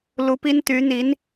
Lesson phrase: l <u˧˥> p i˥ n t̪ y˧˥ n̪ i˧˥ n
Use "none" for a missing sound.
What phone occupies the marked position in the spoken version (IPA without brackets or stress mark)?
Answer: u˧˥